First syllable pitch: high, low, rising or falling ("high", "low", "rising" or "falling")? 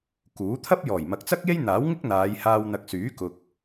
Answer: rising